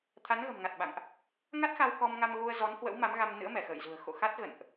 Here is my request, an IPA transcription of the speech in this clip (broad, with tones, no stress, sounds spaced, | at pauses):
t̪ʰ a˨˦ n ɣ ə̤˨˩ m ŋ a˨˩ t̚ ɓ a̰˧˨ ŋ ʔ | ŋ a˦˥ t̚ x a˧ w k ɔ˧ m ŋ a˧ m ɣ u˧ ə̯ z ɔ˨˦ n h w ə̰˧˥ w m a˨˦ m ɣ a˧ m n ɨ̰˧˥ ə̯ m ɛ˧˩ x ə̰ː˧˨ j z ṳ˨˩ ə̯ x o̰˧˨ x a˦˥ t̚ ɣ ə̰˧˨ n ʔ